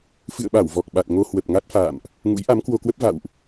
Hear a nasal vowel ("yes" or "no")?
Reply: no